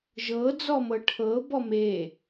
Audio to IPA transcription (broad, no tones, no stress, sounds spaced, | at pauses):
ʒ ɤ d͡z ɔ m ɤ ʈʰ ɤ b ɔ m e